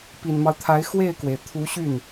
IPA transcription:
p i˨˩ n m ɑ˦ ʊ̯ t̪ʰ a˧˥ ɪ̯ x w e˥˩ ɪ̯ k w e˩ ɪ̯ t̪ʰ u˧˥ ɕ y˥˩ n

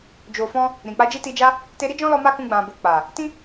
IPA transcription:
d͡ʒ o˨ f ɔ̃˧ | ɾ ĩ˨ k͡p a˧ d͡ʒ i˦ t i˧ d͡ʒ a˦ | t e˧ ɾ i˦ d͡ʒ ɔ̃˦ l ɔ˧ m a˦ k ũ˧ ɡ͡b ã˨ b o˨ k͡p a˨ | t ĩ˦

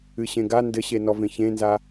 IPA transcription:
ɨ ɕ ẽ ɡ a n d ɘ ɕ e n ɔ v ẽ ç ẽ n z a

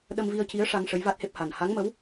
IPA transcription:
ɗ ə˧ m v i˧ ə̯ c i˧˥ ə̯ ʂ a˧ ŋ ʂ ə˧˥ j v a˦˥ t̚ h e˦˥ p̚ h a˨˩ n h a˧˥ ŋ m ə˧˥ w

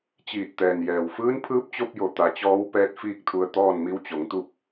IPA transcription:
t͡ɕ iː˧˩ t̚ t̪ ɛː˩ n j ɛː˩ w f ɯː˧˥ n pʰ ɯː˧˥ p̚ t͡ɕ o˧ p̚ j o˩ t̪ a˩˧ t͡ɕ ɔː˧˥ w p ɛː˧˥ t̚ f iː˥˨ k̚ t̪ʰ u˧ ə̯ t̪ ɔː˥˨ n m i˧˥ w t͡ɕ o˩˧ ŋ t̪ u˥˨ p̚

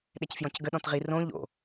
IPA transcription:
ɗ ɛ c f j ɔ̃ c ɡ ə ɗ ɔ̃ t ʁ i r õ ʎ o̰

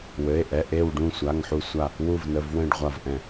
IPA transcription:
w ɘ˩˧˩ e̯ ʔ ɛ˩˧˩ ʔ e˧˩ w ɖ ũ˧˩ sʷ a˩˧˩ ŋ ħ u˧˩ sʷ a˧˩ | w u˧˩ v n ə˩˧˩ v w ɛ̃˧˩ ɖ ʁʷ a˧˩ v ʔ ɛ̃˧˩

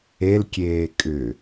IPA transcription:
e l kʲ eː kʼ ʏ

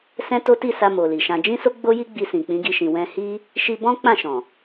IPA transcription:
s ɛ̃˦ t o˦ t i˦˨ s a˧ m o˨ l i˨ ʃ ã˧ d͡ʒ ĩ˦ s o˦ ɡ͡b o˦ j i˦ ɡ͡b i˧ s ĩ˨ k͡p ĩ˨˦ ɡ i˧ ʃ ĩ˨ w ɛ̃˧ h i˦ | ʃ i˧ b ɔ̃˦ k͡p ã˦˨ ʃ ɔ̃˨

